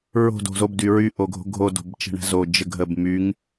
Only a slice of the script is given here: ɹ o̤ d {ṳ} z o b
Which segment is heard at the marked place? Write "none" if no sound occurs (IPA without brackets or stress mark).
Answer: o̤